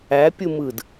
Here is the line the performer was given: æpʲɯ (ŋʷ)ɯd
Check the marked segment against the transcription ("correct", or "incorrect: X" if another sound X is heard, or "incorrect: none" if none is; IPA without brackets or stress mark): incorrect: m